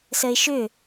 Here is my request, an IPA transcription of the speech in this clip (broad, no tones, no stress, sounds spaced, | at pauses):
s ə ɪ̯ ʃ ʏ